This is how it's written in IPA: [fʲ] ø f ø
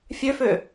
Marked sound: correct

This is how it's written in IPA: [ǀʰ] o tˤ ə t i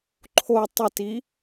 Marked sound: incorrect: ǃʰ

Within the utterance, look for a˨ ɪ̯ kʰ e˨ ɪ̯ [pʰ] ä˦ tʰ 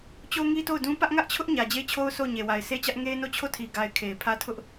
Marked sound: correct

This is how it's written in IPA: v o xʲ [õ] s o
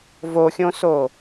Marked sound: correct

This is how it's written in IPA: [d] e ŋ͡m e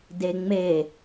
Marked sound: correct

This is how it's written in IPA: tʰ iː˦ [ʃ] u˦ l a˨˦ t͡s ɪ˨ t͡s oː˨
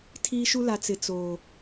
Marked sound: correct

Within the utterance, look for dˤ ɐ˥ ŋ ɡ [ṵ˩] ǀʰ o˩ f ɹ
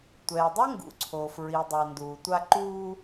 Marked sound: correct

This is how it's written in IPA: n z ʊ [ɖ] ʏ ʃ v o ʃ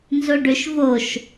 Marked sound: correct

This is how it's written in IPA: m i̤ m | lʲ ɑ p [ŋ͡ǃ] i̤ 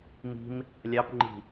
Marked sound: correct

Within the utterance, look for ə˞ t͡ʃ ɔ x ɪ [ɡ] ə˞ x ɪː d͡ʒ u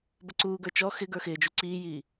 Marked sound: correct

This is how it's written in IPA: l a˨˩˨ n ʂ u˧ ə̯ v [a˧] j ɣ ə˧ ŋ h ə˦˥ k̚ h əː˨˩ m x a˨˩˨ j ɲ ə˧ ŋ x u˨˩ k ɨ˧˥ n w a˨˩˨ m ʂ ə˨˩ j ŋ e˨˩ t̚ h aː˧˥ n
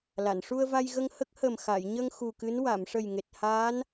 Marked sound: correct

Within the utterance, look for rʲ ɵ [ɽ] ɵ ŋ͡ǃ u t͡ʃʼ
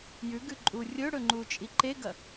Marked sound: correct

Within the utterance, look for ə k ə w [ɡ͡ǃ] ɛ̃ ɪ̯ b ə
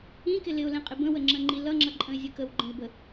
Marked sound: correct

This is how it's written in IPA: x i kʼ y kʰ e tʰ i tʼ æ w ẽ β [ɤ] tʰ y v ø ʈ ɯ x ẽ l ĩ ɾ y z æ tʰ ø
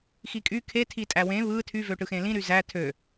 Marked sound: incorrect: ɯ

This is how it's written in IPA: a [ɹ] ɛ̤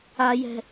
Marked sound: incorrect: j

